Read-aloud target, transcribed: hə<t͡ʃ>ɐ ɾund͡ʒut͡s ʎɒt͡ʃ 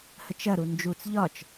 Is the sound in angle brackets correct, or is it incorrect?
correct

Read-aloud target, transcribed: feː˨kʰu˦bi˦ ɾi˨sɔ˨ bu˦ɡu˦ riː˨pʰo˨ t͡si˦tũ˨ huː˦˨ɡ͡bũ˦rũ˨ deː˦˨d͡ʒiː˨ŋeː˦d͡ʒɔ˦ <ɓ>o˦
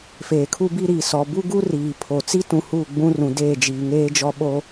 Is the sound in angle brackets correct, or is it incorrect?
correct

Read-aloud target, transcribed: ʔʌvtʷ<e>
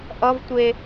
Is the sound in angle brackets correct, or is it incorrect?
correct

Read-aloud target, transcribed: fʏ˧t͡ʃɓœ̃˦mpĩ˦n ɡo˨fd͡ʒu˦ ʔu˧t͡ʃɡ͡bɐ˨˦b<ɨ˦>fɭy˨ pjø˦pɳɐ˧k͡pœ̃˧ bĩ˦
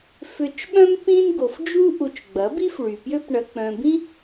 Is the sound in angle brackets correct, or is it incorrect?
incorrect: i˦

